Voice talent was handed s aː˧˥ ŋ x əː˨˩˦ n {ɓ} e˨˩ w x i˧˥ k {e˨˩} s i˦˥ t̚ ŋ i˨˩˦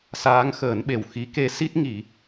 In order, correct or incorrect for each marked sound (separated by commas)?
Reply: correct, incorrect